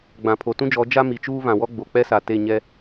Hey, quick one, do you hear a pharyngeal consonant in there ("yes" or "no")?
no